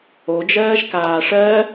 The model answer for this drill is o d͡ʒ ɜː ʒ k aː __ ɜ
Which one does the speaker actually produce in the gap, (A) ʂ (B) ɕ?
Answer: A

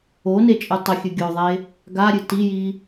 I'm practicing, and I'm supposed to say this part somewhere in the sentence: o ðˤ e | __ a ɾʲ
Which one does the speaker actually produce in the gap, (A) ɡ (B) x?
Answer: A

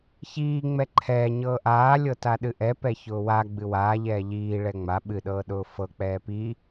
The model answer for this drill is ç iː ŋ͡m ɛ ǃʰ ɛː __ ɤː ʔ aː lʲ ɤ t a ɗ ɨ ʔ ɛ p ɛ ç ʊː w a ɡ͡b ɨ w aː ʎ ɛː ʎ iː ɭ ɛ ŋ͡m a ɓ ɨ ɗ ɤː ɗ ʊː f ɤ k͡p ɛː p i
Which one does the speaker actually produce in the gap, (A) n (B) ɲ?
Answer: B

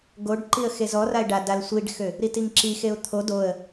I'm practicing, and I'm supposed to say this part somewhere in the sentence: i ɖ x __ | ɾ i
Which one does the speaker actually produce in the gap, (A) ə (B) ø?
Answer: B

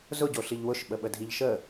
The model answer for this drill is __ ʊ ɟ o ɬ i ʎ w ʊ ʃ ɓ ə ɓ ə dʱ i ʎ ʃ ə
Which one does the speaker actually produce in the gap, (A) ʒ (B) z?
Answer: B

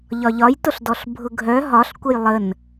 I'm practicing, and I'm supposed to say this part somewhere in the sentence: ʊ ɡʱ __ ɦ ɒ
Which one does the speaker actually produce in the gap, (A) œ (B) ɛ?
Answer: A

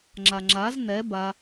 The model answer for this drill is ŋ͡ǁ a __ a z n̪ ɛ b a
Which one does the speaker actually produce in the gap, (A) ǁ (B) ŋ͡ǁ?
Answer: B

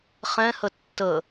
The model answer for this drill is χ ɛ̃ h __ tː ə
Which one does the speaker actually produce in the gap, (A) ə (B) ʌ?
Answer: A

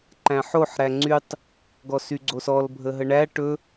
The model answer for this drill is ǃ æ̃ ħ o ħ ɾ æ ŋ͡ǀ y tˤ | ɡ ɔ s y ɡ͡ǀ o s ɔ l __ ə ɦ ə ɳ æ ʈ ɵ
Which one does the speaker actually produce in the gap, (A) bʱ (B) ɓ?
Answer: A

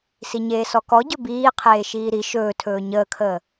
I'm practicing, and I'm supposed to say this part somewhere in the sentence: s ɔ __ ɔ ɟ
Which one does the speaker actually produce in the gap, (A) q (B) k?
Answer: B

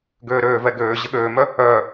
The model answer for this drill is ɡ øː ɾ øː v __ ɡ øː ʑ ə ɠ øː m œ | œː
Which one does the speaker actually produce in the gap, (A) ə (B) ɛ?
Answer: B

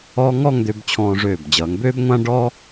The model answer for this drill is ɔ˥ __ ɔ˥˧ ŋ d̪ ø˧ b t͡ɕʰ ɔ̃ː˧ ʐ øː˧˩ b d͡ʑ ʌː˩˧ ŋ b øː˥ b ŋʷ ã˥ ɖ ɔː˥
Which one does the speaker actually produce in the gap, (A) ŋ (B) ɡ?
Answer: A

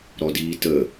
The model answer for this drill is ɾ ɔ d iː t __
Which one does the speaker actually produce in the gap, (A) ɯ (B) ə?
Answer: B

